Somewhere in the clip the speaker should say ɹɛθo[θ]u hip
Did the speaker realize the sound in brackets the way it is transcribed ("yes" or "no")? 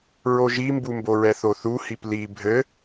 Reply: yes